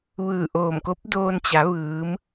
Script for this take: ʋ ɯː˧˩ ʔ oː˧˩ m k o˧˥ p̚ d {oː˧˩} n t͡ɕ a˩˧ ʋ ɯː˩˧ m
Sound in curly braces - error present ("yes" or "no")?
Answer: yes